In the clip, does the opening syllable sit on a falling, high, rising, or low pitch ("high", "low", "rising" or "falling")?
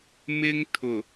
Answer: high